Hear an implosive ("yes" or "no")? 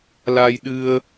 yes